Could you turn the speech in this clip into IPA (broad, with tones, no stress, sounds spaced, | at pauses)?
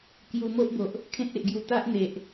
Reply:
k j u˧ m o˦ ʔ b o˨ ʔ | kʰ ẽ˦ t̚ e˨ ʔ ɡ j u˧ t̪ a˦ ʔ n̪ e˨ ʔ